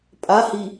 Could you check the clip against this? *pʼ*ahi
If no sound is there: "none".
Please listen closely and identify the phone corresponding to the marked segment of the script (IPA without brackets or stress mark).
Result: pʼ